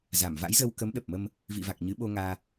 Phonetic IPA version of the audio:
z a˧˩ m v a̰˧˥ j z ə˧ w k ə˨˦ m ɗ ə˨˩ p̚ m ə˧ m | v ḭ˧˨ v a˨˩ k̚ ɲ ɨ˨˦ ɓ o˧ ŋ aː˧

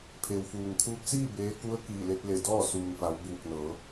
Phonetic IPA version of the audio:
pʰ e˩ w f uː˩ ŋ kʰ uː˧ p̚ s iː˥˨ b eː˧˥ k u˧˥ ə̯ k iː˧˩ l e˧ t̚ l e˧˩ d ɔː˥˨ s uː˩ ŋ f a˩˧ w b uː˧˩ k̚ n ɤː˩˧

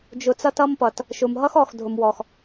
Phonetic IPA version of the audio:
d͡ʒ ʊ˨ t͡s ʌ˧ t ʌ˦ m p ʌ˨ t | ʃ ʊ˨ m ɦ ʌ˦ x ɔ˨ x dʱ ʊ˨ m w ɔ˨ x

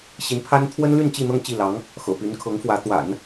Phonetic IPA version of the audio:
ɕ i˧˥ n pʰ a˥ n t̪ʰ w ə˥ n l y˥˧ n t͡ɕ i˥˧ n̪ ɤ˥˧ ŋ t͡ɕ i˥˩ l ɑ˧˥ ŋ | x ɤ̰˨˩ p y˧˥ n kʰ ɤ˧˥ ŋ f w ä˧˥ t̪ w a̰˨˩˦ n

